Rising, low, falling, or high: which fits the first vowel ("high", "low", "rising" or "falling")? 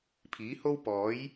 rising